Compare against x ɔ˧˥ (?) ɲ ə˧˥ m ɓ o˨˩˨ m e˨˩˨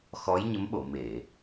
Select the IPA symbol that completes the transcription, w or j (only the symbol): j